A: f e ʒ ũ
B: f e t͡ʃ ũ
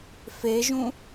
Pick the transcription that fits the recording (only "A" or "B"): A